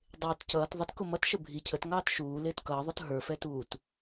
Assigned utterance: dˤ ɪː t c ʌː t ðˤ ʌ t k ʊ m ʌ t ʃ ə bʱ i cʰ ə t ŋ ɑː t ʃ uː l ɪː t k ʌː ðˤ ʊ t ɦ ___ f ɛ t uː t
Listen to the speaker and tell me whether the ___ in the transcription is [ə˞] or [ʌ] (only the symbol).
ə˞